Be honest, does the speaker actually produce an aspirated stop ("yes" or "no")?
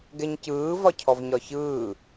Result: yes